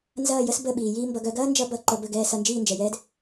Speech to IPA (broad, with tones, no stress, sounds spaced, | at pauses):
n z ɐː˦˨ j ə˦ s b ə˦˨ ɓ iː˨ j iː˦ m b ʌ˧ ɡ œ˧ ɡ ɐː˦ n d͡ʒ ʌ˧ b ʌ˨ ǃ ə˨ b ə˦˨ ɡ ɛː˧ s ʌ˧ n d͡ʒ iː˦˨ n d͡ʒ ɛ˨ j ɛː˦ d